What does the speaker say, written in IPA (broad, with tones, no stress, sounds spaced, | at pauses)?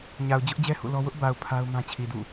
ɲ a˨ ʊ̯ d͡ʑ ʊ˦ ʔ d͡ʑ ɛ˦ h ṵ˦˨ l ɔ˦ w ʊ˦ ʔ b a˨ ʊ̯ pʰ a˦ ʊ̯ m ã˦ t͡ɕʰ i˨ d ṵ˦˨